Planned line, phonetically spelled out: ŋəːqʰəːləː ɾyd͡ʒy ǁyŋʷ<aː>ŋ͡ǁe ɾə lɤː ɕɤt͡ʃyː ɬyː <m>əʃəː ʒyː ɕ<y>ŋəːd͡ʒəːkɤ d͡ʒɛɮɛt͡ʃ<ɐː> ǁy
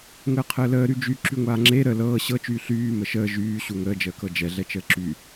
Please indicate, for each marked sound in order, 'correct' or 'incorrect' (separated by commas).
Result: correct, correct, incorrect, incorrect